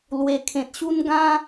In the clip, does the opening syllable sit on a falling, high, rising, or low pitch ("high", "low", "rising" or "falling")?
low